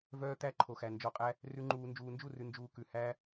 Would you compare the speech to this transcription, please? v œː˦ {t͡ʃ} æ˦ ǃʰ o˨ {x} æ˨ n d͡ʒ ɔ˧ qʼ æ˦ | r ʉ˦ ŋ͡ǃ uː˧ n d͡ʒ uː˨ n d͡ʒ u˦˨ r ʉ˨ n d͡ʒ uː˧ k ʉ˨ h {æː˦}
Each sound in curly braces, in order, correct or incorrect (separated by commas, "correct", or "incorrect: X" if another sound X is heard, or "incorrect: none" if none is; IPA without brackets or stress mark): incorrect: t̪, correct, correct